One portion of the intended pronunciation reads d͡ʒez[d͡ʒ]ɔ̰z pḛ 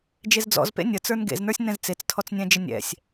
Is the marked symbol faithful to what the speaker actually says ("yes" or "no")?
no